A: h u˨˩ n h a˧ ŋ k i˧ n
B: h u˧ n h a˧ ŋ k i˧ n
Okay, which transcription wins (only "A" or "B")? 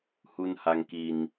B